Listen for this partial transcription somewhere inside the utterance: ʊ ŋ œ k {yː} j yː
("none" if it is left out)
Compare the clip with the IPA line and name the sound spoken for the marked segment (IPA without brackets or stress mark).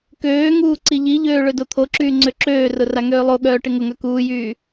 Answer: uː